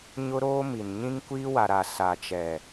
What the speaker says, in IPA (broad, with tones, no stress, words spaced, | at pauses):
ɲʊ˦ɾoː˦mi˨n ɲĩ˦ŋkʷiː˦wa˨ɾa˨ sa˨t͡ʃɛ˨